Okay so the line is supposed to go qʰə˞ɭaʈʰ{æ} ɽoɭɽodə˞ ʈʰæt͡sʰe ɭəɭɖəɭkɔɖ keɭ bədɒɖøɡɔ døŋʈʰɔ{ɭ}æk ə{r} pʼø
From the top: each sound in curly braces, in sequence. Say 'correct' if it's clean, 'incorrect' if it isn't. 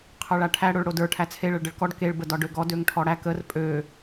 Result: correct, incorrect, correct

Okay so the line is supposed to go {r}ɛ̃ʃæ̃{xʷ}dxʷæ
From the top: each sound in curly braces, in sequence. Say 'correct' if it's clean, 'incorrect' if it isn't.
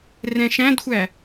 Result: correct, incorrect

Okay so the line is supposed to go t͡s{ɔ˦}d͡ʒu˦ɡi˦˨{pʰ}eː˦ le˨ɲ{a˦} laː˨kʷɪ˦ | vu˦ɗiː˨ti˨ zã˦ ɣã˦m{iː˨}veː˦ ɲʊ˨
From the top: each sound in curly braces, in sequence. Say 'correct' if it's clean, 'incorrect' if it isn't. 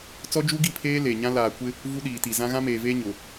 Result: correct, correct, incorrect, incorrect

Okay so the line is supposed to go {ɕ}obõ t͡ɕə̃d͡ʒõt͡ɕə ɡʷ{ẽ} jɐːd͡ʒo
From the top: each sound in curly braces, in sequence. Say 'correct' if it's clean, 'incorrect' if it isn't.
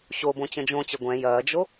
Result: correct, incorrect

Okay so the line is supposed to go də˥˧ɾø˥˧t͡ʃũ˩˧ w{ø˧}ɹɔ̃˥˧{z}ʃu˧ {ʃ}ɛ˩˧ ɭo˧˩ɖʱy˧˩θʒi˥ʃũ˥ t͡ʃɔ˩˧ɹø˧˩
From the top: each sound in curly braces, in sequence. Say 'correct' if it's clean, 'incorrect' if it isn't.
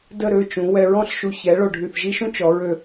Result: incorrect, incorrect, incorrect

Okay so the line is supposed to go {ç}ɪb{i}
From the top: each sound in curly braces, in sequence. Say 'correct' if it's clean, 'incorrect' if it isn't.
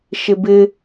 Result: incorrect, incorrect

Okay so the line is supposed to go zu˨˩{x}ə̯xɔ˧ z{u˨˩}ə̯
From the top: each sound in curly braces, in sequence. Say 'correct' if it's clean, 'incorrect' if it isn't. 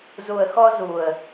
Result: incorrect, correct

